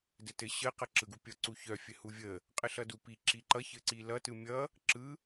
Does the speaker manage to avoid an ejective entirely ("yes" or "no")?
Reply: no